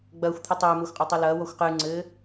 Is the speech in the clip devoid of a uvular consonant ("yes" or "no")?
no